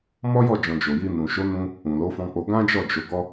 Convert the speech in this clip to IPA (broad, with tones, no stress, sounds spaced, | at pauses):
m ɔ˦ j ɔ˦˨ d͡ʒ ɔ̃˨ d͡ʒ o˨ j i˧ n ũ˨ ʃ o˨˦ n ũ˧ | ũ˨ l o˨˦ f ɔ̃˧ k͡p o˧ ɡ ã˦ d͡ʒ ɔ˦˨ d͡ʒ o˨˦ ɡ ɔ˦